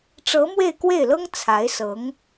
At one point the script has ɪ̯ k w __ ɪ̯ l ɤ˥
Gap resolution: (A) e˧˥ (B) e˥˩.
B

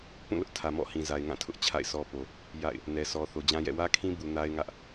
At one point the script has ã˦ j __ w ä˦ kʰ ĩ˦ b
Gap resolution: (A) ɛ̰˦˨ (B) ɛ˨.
A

